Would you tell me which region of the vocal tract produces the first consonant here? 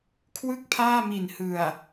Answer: velum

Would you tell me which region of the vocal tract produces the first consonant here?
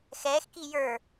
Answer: velum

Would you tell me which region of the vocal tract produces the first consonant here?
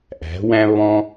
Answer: throat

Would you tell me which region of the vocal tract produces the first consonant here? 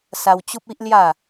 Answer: tongue tip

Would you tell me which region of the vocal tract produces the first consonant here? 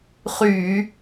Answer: uvula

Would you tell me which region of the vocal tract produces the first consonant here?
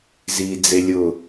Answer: tongue tip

